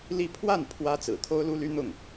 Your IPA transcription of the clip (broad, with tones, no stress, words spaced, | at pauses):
li˥˧ pʰwa˥˩n pʰwä˥ t͡sɹ̩˨˩t̪ʰo˥ʊ̯lu˥ly˥ n̪ʊ˥˩ŋ